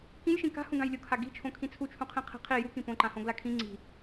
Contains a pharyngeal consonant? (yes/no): no